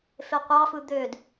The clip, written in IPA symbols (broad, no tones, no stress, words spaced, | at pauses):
feqʷɑfɯ d̪ød